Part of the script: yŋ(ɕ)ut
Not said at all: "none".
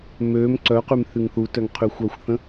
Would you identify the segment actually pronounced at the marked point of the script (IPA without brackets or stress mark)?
θ